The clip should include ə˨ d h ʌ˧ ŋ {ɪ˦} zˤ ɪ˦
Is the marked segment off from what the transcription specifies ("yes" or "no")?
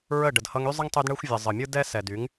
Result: yes